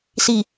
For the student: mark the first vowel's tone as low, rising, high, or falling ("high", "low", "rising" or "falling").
low